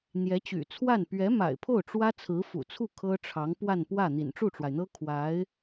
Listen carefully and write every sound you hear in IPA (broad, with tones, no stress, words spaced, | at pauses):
n̪jɛ˧˥t͡ɕy̰˨˩t͡sʰwa˥˩n pɥɛ˧˥ma̰˨˩ɪ̯ pʰo˥˩ʊ̯ʈ͡ʂwä˥ t͡sʰɹ̩˧˥fṵ˨˩t͡sʰu˥˩ kʰɤ˥ʈ͡ʂʰɑ˧˥ŋ pwa˥˧npwä˥˩ n̪ḭ˨˩nʈ͡ʂu˥˩ʈ͡ʂwa˩ɪ̯n̪ɤ˥ kʰwa˧˥ɪ̯